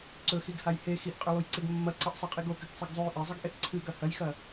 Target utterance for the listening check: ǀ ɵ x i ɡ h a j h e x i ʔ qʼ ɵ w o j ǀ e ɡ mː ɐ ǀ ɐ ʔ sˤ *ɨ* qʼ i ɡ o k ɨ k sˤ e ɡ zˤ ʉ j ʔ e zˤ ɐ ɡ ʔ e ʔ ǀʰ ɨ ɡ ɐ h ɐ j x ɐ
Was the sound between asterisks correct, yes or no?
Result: yes